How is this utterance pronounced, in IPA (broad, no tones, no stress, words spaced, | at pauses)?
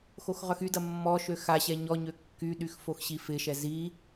xoxʁœxydɐ mːɔʃø xaɕɛ ɲɔɲø kːyɗyx foxɕifɪʃɛ zi